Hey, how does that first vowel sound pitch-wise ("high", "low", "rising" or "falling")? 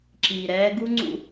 low